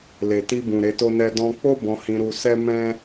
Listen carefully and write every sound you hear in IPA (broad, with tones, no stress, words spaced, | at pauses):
le˨ti˧bũ˨ ɾe˨˦to˦nɛ˦ dɔ̃˧k͡po˦ bɔ̃˧hĩ˧ ɾu˧sɛ˦mɛ̃˦